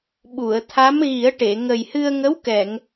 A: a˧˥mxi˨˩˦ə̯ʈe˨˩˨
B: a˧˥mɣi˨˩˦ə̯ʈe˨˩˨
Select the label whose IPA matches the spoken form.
B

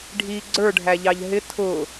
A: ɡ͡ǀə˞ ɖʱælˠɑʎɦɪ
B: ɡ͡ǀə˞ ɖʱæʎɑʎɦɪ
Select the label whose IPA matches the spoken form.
B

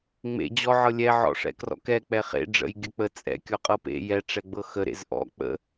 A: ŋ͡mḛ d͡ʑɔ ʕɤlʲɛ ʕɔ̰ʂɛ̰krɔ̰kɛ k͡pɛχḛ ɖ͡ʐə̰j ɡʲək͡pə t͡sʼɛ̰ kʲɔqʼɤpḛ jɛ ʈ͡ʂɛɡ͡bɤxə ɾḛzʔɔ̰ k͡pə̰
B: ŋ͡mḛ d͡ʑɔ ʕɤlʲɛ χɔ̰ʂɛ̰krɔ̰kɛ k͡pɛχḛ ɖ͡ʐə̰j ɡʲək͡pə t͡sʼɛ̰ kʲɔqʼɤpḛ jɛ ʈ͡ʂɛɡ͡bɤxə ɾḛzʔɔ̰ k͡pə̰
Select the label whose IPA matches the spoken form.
A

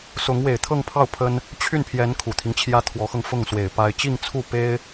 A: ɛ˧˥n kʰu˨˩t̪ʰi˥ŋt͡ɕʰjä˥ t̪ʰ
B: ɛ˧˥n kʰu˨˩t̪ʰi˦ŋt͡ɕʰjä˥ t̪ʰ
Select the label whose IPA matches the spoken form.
B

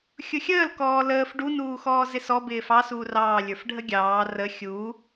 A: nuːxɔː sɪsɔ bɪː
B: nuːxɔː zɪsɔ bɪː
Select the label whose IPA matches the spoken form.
B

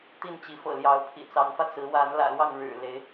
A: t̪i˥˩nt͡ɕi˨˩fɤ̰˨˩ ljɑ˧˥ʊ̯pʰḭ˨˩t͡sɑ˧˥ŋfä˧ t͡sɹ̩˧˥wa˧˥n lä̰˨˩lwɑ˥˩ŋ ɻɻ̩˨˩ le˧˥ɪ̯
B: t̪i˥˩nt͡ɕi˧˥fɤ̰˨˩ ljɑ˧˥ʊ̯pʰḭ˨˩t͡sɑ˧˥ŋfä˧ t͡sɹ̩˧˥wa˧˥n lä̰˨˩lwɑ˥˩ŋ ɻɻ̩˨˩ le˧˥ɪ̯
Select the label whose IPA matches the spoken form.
B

